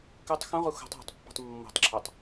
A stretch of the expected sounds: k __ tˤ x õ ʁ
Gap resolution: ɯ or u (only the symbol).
ɯ